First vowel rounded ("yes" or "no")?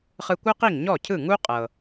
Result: no